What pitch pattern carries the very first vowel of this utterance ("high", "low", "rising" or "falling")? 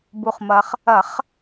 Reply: low